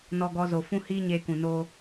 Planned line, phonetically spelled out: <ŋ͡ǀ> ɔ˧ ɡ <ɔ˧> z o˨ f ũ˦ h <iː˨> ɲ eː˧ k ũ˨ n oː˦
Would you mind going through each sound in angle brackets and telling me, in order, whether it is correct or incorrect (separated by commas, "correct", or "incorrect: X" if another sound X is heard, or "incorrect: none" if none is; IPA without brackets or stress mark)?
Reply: incorrect: n, correct, incorrect: iː˦